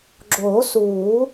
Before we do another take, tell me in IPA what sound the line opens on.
ɡ͡ǁ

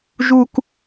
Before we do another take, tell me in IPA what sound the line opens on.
ʒ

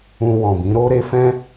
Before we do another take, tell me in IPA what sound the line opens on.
ũ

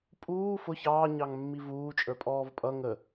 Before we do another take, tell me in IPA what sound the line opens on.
pʼ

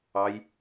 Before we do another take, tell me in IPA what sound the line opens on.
ɑ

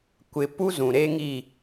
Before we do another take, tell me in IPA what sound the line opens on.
kʷ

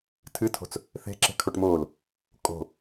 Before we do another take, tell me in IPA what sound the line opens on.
tʰ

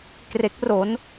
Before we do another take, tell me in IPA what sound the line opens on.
k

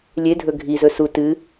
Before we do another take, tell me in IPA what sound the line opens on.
lʲ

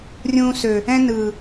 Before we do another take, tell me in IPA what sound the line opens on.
rʲ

